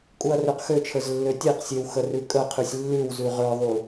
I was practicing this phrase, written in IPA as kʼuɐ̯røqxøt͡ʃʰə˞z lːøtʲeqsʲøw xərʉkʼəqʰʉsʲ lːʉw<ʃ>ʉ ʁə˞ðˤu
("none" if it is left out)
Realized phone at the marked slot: z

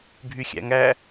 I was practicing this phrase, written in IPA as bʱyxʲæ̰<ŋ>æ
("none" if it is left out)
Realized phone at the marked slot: ŋ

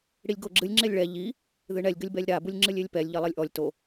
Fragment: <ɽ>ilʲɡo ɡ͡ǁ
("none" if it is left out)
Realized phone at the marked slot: ɽ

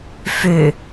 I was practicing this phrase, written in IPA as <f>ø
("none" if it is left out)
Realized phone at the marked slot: f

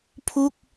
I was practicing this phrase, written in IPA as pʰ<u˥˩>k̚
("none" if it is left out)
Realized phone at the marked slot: u˥˩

